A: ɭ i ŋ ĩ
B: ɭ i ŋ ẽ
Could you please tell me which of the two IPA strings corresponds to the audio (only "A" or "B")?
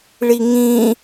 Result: A